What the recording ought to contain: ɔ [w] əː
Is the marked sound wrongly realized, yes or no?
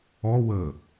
no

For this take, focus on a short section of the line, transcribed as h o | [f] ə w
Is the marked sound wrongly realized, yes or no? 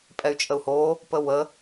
yes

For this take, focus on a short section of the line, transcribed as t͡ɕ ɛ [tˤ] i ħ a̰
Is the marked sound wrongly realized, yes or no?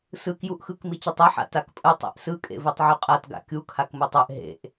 no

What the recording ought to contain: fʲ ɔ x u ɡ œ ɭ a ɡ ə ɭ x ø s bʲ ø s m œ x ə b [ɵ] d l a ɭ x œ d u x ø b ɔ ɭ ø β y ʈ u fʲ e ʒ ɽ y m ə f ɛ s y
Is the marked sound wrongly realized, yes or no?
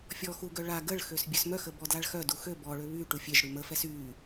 yes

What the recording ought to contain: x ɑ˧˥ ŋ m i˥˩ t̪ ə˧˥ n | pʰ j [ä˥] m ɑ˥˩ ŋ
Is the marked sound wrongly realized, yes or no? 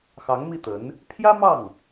no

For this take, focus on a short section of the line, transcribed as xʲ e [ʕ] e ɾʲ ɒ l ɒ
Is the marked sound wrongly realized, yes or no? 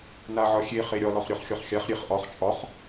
yes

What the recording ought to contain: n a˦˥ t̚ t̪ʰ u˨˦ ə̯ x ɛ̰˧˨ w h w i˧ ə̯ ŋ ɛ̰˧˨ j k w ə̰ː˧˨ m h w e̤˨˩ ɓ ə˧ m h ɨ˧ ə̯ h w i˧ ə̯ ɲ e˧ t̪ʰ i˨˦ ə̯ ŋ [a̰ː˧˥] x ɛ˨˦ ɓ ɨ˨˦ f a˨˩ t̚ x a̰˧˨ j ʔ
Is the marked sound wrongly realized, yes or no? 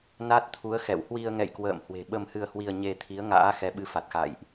no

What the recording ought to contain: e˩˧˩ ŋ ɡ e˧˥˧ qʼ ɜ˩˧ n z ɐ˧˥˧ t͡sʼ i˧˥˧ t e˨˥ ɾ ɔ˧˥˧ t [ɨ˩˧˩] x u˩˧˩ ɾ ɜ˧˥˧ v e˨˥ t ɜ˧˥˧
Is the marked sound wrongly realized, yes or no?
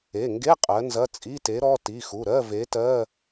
yes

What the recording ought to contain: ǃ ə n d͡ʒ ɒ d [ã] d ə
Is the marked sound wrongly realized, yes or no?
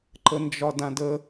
no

